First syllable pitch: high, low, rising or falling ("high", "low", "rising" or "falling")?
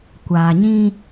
low